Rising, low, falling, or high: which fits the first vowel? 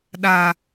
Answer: low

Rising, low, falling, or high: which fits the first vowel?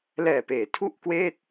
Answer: low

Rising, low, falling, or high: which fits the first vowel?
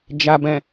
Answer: low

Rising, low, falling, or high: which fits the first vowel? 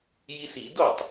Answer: high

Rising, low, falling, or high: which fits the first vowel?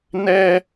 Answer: high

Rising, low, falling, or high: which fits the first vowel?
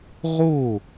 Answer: falling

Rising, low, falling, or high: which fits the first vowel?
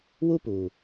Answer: high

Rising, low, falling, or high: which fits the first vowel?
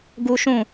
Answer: high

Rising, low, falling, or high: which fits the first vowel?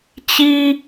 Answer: high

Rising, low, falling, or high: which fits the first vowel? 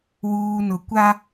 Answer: low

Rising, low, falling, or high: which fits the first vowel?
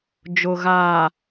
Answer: low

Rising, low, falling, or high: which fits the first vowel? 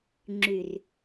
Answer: low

